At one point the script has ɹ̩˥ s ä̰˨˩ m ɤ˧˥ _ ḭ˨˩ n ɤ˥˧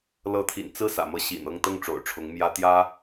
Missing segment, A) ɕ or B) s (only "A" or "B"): A